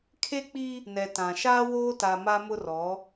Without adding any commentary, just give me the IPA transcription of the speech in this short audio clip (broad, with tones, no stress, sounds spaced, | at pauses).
kʰ e˦ k͡p i˦ | n ɛ˨ t ã˨ ʃ aː˦ w oː˦ t a˨ m a˦ m ʊ˦ r ɔ˨˦